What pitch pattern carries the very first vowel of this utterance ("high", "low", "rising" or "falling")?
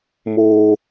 high